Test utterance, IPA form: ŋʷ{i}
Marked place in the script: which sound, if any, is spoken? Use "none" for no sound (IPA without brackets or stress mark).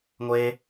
e